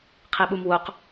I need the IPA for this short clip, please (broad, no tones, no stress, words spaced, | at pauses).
qʰiɓumwoq